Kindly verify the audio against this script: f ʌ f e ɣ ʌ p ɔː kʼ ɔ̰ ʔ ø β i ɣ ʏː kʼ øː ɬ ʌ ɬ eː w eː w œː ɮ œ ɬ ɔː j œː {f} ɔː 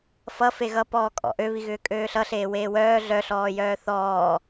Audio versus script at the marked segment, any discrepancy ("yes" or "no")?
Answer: yes